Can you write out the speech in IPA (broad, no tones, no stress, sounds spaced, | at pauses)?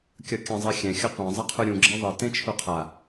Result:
kʲ ʌ kʲ ã zˤ i xʲ ɛ̃ xʲ ʌ qʷ ã zˤ ʌ qʰ u ɾʲ ũ ɡ͡ǁ ɛ ðˤ ʌ t ẽ t͡ʃʰ u qʰ a